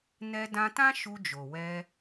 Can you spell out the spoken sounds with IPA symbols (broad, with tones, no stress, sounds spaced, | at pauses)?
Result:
n ɛ˧ d ã˧ t ã˦ ʃ u˧ d͡ʒ o˨ w ɛ˧